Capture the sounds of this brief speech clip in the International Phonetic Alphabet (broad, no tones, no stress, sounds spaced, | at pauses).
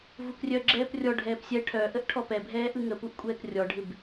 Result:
v u k rʲ œ ɡ͡ǁ ɛː p rʲ ɔ ɖʱ ɛː p sʲ ɛ ʈʰ œ ʔ ə ʔ ʈʰ ɔ p ɛ bʱ ɛː ʔ ɯ ŋ ə p u ʔ kʷʼ ɛː k rʲ ɔ ɖʱ ɪ b